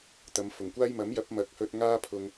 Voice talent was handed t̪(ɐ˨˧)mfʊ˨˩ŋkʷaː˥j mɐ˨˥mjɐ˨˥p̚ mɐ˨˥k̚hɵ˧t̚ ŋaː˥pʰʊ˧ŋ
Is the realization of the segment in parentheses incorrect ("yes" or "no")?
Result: no